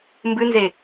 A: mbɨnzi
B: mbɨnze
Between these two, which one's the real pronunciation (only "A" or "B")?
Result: B